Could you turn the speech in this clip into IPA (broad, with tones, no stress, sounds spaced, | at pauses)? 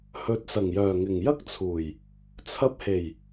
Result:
h ɵ˨˥ t̚ s ɐ˨˩ ŋ j œː˨˩ ŋ ɪ˨˩ ŋ j ɐ˥ k̚ t͡sʰ uː˨˩ j | t͡sʰ ɐ˧ p̚ h e˨˩ j